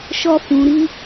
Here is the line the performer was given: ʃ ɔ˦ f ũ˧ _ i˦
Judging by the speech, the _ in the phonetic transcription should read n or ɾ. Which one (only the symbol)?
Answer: ɾ